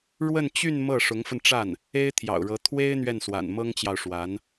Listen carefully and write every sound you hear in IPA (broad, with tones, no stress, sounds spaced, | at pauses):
ɻ w ə˥˧ n t͡ɕ y˥˧ n m ɤ˥˩ ʂ ʊ˧˥ ŋ f ə˧ n ʈ͡ʂ a˥˩ n | e˥ ɪ̯ t̪ʰ j ɑ̰˨˩ ʊ̯ ɻ ɤ˧˥ t̪ʰ w e˥ ɪ̯ n̪ ɥ ɛ˥˩ n s w a̰˨˩ n m ɤ˥ ŋ t͡ɕ j ɑ˨ ʊ̯ ʂ w a˧˥ n